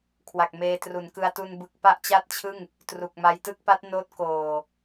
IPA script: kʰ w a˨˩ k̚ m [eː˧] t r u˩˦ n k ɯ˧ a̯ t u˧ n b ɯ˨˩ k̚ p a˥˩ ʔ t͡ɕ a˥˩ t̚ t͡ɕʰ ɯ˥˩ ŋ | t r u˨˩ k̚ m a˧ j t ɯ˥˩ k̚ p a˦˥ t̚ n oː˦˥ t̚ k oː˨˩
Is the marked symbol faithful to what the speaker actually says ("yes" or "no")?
yes